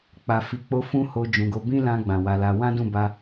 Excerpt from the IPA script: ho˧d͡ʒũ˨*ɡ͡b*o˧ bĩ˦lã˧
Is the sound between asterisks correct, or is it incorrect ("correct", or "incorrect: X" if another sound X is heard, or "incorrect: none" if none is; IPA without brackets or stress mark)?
incorrect: ɡ